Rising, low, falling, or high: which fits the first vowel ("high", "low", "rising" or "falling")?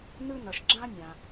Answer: high